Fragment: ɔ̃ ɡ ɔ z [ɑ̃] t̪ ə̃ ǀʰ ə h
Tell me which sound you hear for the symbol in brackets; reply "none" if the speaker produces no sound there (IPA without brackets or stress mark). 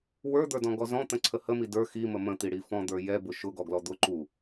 ɔ̃